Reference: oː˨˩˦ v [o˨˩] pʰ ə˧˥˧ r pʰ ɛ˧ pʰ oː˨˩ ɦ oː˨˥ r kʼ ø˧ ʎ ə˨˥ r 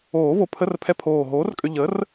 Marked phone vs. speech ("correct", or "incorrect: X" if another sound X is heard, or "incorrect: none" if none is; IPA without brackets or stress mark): correct